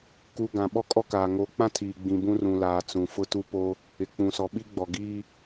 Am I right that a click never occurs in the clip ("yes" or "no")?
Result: yes